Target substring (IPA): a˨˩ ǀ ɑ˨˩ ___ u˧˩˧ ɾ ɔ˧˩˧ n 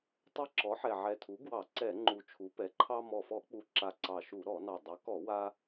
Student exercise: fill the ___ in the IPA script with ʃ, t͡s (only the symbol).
ʃ